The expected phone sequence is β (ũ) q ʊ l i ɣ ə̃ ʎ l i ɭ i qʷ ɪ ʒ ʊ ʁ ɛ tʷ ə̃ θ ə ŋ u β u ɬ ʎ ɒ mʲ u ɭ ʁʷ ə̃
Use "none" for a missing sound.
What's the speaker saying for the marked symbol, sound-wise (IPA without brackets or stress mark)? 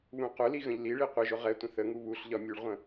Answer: ũ